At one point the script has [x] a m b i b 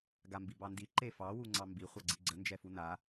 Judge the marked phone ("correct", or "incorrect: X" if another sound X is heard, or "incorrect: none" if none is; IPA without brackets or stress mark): incorrect: ɡ